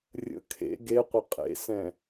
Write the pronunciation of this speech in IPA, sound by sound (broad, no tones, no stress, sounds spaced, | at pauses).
rʲ ə̰ kʰ ḛ ɡ e qʷ ə qʼ ḛ s ɛ̃